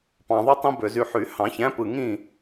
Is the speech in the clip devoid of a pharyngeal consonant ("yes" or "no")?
no